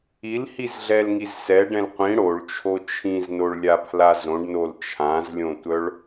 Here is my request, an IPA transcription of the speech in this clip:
i l h i z ɮ ɛ l ŋ i z s ɛ ɖ ɛ̃ l qʷ ĩ ɽ o ɭ t͡ʃʰ o t͡ʃʰ ĩ z n o ɭ lʲ a pʰ l a z õ ɖ n o l t͡ʃʰ ã z lʲ õ tʷ œ ɭ

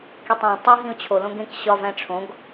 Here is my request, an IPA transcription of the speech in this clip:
k i tˤ õ tˤ æ ɦ ĩ ʊ̯ t͡ɕʰ o l õ ɡ ẽ k ɕ ɒ v æ̃ ʈ͡ʂʰ õ ɡ

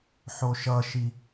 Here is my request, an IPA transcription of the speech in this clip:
ħ o ʃ ʌ ʃ i

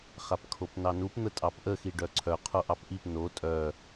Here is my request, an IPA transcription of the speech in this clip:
χ a p kʰ o p n ɑ n u p n̪ ə tʼ ɑ p ʔ ə x i ɖ œ ǀʰ œ qʰ o ʔ ɑ p ʔ i p n o tʼ œ

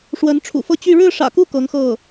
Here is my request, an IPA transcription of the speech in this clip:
ʂ w ə˧˥ n ʈ͡ʂʰ ṵ˨˩ f ɤ˥˧ t͡ɕ y˥˧ ɻ ɻ̩˥˩ ʂ ä̰˨˩ k u˥˩ k ɤ˧˥ ŋ x ɤ˥˩

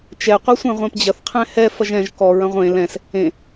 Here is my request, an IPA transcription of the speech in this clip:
t͡ʃ ɛ qʷ ɛ sʷ ẽ ʁʷ ẽ p d͡ʑ ɐ θ qʰ ɛ̃ h ɛ f ɐ ʒ ɛ̃ ʒ k ɔ ɹ ɐ̃ ʁʷ ẽ l ɛ̃ s | ẽ

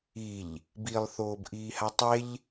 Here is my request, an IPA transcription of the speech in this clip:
i ʎ | b i lˠ θ oː b ʔ iː h a tˤ e ʎ

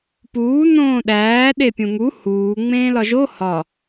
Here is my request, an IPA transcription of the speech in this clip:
p uː n õː ɗ æː ɗ e pʲ ũ ŋ u h uː ŋ͡m ẽː l ɒ ʒ o h ɒ

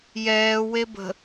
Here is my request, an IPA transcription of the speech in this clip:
j ɛː w e b ə̤

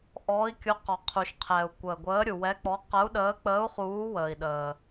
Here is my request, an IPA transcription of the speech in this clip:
ʔ ɔː˨˦ i̯ kʲ ʊ˨˦ q ɔ˩ qʰ u˩ ʃ qʰ ɛː˩ u̯ kʷ əː˩ ɡʷ əː˨˦ ɾʲ u˩ w ɛ˨˦ k͡p ɔ˨˦ q ə˨˦ u̯ ɗ əː˨˦ k͡p əː˨˦ u̯ χ uː˨˦ w əː˩ i̯ ɗ əː˩

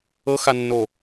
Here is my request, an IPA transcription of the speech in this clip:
ɤ x a nː o

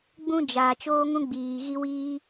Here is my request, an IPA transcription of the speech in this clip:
ɡ͡b ũ˦ d͡ʒ aː˨ t͡ʃ oː˦ ŋ ũ˦ ɡ͡b iː˨ ɣ i˦ w iː˦

